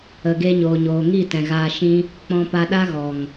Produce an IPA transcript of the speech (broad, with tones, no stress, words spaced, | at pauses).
ə˨ɡe˧ ɲoː˨ɲoː˨ŋi˦˨tɛ̃˨ ɣaː˧ʃĩ˦ | k͡pɔ̃˧pa˧ɗa˦ ɣɔ˨ŋ